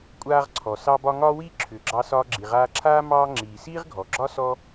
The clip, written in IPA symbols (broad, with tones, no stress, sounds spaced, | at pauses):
kʷʼ aː˧ ʁ ǀʰ ɔ˩ s ɑ˧ b ɒ˧ ŋ ɒː˥ w iː˥ ǁʰ ʏː˩ ɡ͡ǁ ɑ˧ s ɒː˧ ɡ͡ǁ i˩ ʁ aː˧ ǁʰ aː˥ m ɑː˧ ŋ͡ǁ iː˩ s iː˥ ʁ ɡʱ ɔ˩ ɡ͡ǁ ɒ˥ s ɔ˥